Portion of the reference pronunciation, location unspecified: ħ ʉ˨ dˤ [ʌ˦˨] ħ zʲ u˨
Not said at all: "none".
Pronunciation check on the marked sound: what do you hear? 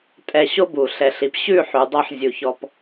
ʌ˦˨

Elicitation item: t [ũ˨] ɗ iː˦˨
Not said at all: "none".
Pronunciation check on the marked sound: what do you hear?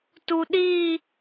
u˨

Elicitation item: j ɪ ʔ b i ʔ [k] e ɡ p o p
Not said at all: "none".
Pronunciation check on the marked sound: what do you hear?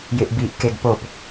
k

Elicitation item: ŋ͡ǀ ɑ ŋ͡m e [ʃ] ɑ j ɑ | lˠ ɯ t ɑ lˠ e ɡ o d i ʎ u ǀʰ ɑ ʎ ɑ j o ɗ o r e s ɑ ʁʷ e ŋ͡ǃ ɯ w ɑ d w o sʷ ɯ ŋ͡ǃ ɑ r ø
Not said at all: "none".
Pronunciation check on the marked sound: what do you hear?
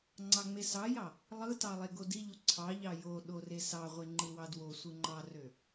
s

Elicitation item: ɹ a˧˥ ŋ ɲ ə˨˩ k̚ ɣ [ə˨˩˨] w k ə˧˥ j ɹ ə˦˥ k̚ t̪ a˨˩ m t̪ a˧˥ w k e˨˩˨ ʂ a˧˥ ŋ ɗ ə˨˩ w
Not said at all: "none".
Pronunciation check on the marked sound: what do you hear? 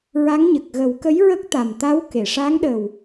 ə˨˩˦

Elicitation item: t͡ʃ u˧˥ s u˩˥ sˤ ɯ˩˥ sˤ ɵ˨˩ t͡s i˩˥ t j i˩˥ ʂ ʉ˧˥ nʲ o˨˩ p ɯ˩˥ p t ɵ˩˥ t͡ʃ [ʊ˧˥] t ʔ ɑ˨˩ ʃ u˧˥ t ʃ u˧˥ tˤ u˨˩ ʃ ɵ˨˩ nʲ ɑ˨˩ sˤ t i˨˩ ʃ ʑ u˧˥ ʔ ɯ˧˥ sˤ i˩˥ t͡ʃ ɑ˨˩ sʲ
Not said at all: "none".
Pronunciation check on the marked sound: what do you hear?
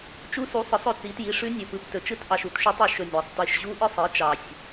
ɯ˧˥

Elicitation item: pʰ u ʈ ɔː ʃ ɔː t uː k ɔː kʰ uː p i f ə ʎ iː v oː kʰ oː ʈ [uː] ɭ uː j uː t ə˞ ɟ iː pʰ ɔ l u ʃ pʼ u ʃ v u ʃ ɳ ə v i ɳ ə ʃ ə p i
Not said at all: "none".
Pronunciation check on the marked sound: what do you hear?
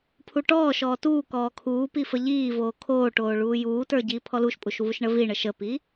oː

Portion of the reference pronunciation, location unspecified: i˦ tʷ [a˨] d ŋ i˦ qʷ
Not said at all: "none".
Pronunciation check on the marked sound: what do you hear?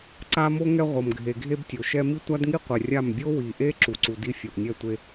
a˦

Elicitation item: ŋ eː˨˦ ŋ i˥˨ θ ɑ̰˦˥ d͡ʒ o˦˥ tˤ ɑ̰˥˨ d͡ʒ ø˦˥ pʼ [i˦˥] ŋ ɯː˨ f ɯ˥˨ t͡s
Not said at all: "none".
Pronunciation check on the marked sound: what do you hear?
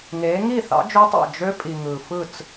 i˨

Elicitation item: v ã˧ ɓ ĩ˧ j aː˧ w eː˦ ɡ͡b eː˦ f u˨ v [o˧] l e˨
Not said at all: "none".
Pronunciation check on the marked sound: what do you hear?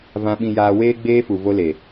o˧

